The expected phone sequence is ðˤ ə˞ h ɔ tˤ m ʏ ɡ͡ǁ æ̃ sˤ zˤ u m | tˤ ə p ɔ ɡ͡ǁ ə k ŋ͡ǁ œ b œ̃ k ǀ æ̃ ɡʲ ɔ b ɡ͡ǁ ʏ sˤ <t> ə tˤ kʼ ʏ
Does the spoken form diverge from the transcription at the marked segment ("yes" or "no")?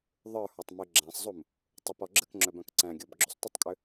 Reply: yes